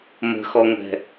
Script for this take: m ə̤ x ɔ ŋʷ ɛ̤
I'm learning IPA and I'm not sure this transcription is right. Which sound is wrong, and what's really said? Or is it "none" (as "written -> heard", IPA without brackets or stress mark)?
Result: none